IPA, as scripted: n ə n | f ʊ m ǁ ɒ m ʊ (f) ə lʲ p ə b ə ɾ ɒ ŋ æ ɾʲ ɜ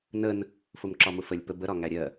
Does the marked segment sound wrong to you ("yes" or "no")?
no